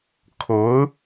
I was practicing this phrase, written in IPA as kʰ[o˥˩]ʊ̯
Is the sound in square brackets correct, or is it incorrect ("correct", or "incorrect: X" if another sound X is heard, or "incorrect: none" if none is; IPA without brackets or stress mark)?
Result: incorrect: o˧˥